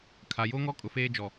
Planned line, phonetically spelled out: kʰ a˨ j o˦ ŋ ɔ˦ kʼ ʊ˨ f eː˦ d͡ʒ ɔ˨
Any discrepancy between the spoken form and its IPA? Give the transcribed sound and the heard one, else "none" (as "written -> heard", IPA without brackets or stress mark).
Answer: none